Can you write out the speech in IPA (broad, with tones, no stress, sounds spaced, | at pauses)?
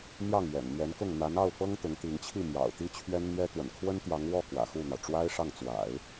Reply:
n̪ j ɑ˥˩ ŋ ɥ ɛ̰˨˩ n n̪ ɥ ɛ˧˥ n k ʊ˥˩ ŋ n̪ a˧˥ n ɑ˥˩ ʊ̯ f ɤ˥ ŋ t̪ ʊ˧˥ ŋ t̪ i˧˥ ŋ t͡ɕʰ i˥˩ m j ɑ̰˨˩ ʊ̯ t̪ i˥ t͡ɕʰ ɥ ɛ˥ n n̪ ɥ ɛ˥ t̪ w ə̰˨˩ n kʰ w ə˥ n t̪ j ɑ˧˥ ŋ w ɔ˥˩ k w ä̰˨˩ x u˥˩ n̪ ɑ˩ ʊ̯ ʈ͡ʂ w a˥ ɪ̯ ʂ ɑ˥˩ ŋ t͡s w a̰˨˩˦ ɪ̯